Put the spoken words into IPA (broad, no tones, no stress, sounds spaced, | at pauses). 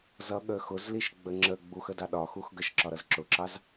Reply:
z ʌ ɠ ə x ʊ z l i ʃ ɡ͡b ə ŋ͡ǁ ə ɡ͡b u x ə d ɑ ɗ ɒ x u x ɡ ə ʃ ǁ ɒ ɾ ʌ z ǁ ʊ ǁ ɑ z